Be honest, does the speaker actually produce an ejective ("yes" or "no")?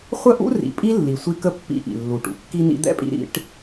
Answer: yes